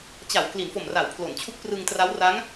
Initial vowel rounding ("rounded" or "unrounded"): unrounded